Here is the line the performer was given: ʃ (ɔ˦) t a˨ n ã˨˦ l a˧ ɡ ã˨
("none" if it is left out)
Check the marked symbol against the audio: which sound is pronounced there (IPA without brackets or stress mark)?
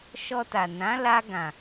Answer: ɔ˧